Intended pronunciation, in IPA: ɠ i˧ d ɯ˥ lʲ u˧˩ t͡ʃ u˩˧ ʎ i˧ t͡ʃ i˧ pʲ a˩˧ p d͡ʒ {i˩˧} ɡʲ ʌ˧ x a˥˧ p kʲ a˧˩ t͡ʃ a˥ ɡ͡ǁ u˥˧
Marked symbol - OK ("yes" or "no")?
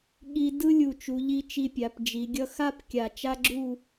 yes